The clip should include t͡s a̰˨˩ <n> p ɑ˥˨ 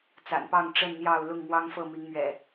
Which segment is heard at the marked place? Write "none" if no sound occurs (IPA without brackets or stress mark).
n